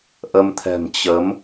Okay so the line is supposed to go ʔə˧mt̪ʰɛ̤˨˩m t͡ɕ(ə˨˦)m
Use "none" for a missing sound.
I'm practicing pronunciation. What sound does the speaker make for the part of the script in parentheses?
ə˨˦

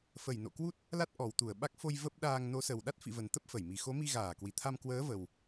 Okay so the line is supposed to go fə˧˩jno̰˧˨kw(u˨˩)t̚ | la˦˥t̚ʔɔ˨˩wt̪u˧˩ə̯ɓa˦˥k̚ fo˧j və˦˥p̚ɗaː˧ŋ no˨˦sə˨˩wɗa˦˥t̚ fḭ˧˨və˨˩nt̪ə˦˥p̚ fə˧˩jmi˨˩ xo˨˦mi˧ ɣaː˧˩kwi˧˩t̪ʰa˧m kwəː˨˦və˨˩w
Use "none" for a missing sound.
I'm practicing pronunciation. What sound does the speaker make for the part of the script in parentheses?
u˦˥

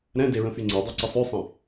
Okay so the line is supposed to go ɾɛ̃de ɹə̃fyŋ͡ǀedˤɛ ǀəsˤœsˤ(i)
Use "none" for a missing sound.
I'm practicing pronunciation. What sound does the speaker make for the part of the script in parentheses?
ĩ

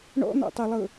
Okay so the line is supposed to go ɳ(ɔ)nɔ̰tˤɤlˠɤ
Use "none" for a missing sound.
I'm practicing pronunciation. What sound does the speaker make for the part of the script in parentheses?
ɔ̰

